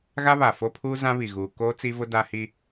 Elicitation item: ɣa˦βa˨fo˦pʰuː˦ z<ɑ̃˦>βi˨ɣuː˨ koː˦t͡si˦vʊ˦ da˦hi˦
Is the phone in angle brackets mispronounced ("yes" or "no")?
yes